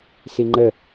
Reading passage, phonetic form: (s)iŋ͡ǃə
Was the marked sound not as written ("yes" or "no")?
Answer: no